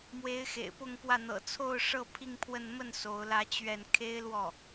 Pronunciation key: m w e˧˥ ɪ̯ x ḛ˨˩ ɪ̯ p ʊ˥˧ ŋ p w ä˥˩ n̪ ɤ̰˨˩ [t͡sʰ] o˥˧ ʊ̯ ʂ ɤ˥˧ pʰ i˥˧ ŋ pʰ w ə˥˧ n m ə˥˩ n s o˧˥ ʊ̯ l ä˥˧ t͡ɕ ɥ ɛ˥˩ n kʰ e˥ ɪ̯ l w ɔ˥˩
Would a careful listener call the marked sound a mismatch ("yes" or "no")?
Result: no